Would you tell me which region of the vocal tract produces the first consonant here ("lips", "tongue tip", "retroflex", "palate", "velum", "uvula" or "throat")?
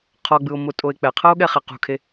uvula